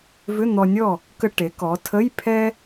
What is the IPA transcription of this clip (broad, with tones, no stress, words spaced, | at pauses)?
vʏ˧˥˧n̪ɔ˧nʲɔ˥˨ | kə˧ʈe˩˧kɔ˩˧ tʰə˧˥˧j pʰɛ˥